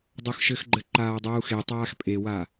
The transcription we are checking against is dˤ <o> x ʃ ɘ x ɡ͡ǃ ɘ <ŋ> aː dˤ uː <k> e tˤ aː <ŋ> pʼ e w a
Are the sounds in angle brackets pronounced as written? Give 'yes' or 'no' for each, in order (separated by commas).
yes, no, no, no